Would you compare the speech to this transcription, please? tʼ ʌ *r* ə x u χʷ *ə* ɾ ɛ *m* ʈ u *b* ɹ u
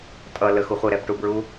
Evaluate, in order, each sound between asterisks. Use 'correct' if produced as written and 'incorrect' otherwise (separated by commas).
incorrect, correct, incorrect, correct